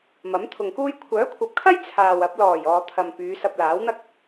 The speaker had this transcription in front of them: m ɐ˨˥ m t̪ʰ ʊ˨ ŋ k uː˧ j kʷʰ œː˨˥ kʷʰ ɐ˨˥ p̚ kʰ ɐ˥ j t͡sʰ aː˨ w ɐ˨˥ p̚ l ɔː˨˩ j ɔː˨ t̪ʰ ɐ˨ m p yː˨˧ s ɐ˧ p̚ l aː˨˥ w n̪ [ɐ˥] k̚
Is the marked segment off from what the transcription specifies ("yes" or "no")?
no